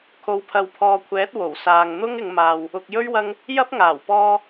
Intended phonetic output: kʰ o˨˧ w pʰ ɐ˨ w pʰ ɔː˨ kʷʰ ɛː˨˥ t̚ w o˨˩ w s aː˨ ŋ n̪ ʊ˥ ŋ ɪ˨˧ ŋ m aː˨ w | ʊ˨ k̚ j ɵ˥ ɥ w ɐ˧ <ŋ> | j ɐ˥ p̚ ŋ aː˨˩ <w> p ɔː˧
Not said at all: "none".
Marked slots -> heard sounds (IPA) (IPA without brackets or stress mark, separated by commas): ŋ, w